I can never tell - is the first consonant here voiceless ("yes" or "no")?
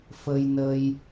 yes